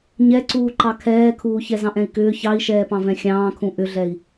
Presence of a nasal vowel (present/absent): present